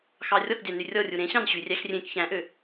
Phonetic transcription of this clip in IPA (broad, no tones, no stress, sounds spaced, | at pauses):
x ɑ rʲ ɔ k dʲ ɑ n y rʲ ɔ rʲ u ɾ ẽ ɕ ɑ̃ n ɕ y rʲ æ x rʲ ẽ k ç æ̃ ʔ ø